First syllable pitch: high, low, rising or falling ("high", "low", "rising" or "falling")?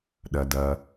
low